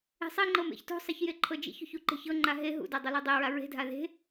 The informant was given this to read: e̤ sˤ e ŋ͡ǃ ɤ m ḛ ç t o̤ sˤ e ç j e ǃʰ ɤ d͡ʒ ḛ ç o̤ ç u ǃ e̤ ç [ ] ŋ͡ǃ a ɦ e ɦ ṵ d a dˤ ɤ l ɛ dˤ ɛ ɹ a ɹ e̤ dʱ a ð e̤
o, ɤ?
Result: ɤ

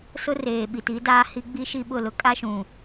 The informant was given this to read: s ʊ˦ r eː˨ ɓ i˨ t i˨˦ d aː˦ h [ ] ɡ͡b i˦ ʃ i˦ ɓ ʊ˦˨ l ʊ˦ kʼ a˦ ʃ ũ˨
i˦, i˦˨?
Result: i˦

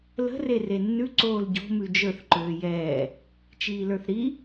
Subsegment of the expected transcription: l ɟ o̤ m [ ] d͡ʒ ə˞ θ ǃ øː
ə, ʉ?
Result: ʉ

